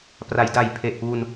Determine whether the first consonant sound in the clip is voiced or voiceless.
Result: voiceless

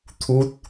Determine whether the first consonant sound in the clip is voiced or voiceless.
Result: voiceless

